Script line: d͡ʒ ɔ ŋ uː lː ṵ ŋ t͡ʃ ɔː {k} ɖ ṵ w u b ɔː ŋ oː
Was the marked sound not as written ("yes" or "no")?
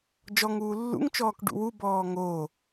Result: no